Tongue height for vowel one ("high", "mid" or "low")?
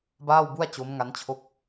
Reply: low